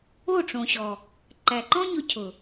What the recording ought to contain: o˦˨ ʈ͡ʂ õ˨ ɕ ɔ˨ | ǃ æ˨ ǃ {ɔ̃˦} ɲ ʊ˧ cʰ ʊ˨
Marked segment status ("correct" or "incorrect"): correct